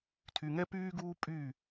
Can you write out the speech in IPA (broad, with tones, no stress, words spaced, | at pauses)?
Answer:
tʰy˨ŋɛ˦pyː˦ɡuː˦ pʼy˦˨